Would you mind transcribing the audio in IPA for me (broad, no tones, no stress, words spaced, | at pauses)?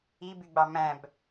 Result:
i byɡ͡bɑmæ̃b